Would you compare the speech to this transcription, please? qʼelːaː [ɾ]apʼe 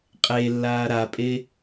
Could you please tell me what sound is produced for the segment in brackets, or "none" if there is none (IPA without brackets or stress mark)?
ɾ